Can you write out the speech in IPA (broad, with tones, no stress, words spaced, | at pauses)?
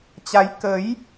t͡ɕa˨˦j kə˨˦j